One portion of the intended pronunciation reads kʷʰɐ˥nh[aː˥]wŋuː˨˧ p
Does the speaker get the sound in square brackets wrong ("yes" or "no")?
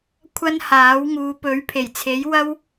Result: yes